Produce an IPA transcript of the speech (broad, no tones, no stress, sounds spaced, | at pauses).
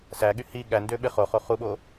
s æ ɠ y h i ɠ æ n d ø ɓ e χ o χ o χ u ɓ o